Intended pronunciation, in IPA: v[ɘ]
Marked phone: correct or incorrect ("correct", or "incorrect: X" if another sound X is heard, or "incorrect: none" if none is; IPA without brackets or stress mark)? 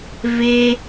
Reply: incorrect: e